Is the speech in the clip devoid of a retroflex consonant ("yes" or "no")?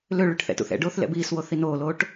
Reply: no